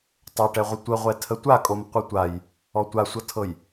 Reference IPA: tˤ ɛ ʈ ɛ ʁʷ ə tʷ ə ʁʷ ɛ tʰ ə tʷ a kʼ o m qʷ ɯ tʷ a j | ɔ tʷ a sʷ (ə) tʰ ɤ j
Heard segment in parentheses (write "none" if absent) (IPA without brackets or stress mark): ʌ